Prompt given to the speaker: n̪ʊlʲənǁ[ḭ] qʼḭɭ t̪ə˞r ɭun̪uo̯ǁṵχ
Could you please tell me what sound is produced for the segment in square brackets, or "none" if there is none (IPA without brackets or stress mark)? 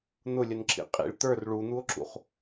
ḭ